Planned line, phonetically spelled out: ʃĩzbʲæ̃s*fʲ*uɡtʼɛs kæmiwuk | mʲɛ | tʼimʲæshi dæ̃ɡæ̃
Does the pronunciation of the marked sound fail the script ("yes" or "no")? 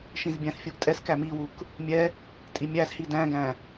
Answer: no